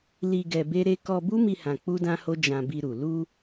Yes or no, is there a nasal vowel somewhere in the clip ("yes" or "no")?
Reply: yes